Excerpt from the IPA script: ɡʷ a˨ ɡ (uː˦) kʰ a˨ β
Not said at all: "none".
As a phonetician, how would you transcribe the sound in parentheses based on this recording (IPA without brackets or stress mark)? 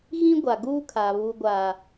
u˦